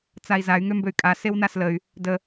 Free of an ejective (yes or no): no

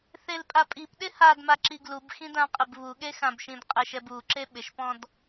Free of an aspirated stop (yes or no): yes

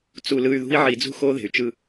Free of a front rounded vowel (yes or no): no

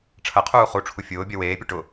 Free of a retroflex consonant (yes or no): no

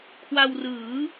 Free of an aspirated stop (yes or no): no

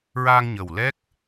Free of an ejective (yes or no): yes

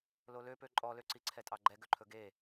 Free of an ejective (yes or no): no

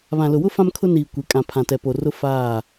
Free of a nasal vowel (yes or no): no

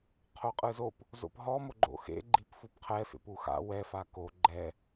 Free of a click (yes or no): no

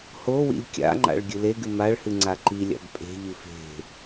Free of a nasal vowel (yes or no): yes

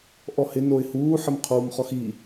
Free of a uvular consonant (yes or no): no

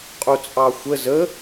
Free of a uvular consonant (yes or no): no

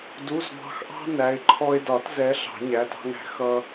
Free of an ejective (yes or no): yes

